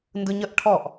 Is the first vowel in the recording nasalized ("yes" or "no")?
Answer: no